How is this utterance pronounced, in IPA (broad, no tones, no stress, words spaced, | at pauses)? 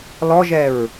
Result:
lɔʒɛɹ